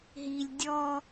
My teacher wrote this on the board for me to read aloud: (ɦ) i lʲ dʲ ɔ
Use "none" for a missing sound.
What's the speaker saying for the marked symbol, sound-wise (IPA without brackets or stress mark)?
ɦ